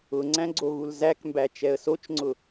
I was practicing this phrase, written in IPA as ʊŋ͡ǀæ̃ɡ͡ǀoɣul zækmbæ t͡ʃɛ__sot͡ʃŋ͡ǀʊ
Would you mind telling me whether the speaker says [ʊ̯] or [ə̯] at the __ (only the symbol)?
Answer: ə̯